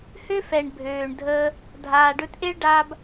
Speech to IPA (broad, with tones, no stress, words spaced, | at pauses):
hø˦fɛ˨ɳ bʱøː˨ɳdʱəː˧ | dʱaː˨ɖɵ˧tʔe˦ɭɖaː˧b